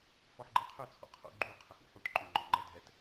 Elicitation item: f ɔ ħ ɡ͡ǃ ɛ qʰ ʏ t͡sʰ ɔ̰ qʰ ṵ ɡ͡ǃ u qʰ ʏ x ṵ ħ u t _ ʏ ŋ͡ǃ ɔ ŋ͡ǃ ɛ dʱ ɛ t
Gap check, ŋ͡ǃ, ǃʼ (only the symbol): ǃʼ